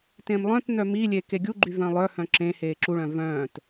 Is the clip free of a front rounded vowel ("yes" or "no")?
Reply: no